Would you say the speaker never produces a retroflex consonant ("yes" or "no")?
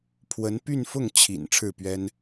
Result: no